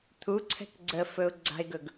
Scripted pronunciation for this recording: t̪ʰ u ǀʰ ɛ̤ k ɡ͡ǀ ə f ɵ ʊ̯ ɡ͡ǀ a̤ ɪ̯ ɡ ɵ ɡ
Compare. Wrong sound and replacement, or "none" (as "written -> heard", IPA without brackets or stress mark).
none